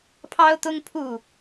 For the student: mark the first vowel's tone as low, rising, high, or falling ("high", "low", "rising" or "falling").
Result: high